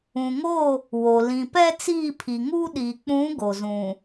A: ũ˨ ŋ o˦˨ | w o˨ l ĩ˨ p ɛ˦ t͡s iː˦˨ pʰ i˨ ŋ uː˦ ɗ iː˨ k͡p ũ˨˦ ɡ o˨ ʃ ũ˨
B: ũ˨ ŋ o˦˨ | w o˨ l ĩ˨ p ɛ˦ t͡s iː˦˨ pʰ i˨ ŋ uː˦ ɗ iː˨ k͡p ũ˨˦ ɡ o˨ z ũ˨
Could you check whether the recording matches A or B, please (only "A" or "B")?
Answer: B